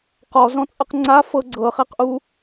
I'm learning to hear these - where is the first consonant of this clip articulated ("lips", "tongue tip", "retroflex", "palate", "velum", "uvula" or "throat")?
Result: uvula